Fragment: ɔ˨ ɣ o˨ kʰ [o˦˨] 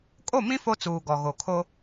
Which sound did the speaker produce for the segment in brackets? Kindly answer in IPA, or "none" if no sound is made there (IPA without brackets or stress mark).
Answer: o˦